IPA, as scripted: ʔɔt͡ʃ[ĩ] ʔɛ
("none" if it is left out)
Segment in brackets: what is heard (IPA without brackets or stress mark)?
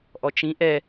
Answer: ĩ